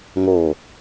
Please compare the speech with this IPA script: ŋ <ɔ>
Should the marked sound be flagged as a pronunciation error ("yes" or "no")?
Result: yes